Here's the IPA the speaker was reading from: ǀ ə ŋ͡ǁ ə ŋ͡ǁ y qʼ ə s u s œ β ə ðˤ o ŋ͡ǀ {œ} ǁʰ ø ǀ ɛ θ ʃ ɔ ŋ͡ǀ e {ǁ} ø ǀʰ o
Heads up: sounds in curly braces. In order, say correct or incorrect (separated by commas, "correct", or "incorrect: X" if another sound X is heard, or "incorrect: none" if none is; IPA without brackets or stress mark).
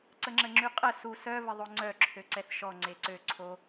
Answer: correct, incorrect: ǀ